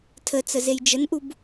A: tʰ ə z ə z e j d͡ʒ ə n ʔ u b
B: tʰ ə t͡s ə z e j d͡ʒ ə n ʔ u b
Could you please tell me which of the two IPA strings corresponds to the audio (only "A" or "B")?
B